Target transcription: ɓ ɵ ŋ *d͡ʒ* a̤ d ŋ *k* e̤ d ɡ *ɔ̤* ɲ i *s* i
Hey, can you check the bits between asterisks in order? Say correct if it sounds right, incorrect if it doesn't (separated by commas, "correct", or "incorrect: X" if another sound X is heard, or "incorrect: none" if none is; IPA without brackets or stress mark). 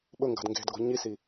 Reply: incorrect: ɡ, incorrect: ɡ, correct, correct